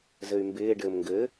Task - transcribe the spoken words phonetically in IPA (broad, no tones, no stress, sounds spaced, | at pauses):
z ɘ y̯ m b ɪː ɖ ɘː m ŋ ɡ ɘː